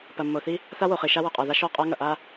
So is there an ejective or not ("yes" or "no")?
yes